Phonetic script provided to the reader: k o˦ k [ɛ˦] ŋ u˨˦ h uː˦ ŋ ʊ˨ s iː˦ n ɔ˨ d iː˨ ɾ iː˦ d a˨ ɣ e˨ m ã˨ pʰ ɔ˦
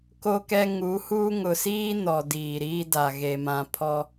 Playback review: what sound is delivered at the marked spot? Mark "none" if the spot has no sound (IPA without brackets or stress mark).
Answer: ɛ˦